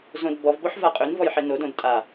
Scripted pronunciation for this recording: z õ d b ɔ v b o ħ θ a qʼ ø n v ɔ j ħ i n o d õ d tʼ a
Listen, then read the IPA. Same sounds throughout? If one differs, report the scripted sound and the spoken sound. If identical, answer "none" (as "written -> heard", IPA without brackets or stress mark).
θ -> v